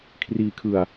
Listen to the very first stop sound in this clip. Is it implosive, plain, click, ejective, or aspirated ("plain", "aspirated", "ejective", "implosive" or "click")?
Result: aspirated